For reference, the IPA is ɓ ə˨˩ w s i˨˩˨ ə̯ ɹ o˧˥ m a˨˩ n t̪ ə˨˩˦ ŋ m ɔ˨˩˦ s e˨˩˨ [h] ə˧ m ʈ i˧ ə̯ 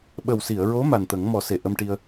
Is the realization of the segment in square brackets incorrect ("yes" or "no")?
yes